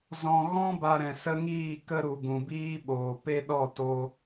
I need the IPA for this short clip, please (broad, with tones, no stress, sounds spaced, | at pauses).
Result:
z ɔ̃˧ ɣ ɔ̃˦ b a˧ ɾ ɛ̃˨ s ə˦ ŋ iː˦˨ k ə˧ ɾ u˨ ɡ ũ˨ b iː˦ ɓ oː˨ p e˦ ɗ ɔ˦˨ t o˧